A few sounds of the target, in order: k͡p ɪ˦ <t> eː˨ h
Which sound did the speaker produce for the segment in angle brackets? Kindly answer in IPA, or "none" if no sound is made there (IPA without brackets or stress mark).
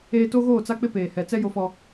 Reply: p